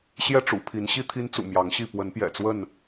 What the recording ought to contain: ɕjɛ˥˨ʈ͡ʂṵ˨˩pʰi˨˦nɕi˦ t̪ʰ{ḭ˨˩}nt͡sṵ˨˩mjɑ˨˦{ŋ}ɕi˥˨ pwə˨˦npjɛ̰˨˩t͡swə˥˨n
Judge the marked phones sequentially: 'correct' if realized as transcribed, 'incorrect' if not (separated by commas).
incorrect, correct